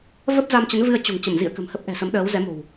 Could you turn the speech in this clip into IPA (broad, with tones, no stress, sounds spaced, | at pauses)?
v ə˦˥ p̚ z a˧ m t͡ɕ ə˨˦ n v ɨ˧ ə̯ t͡ɕ o̤˨˩ ŋ t͡ɕ ə˧˩ m z ḭ˧˨ ə̯ k ə̤˨˩ m h ə˦˥ p̚ ʔ ɛ̤˨˩ s ə˨˦ m ɗ əː˨˦ w z ɛ˨˦ m o̤˨˩ w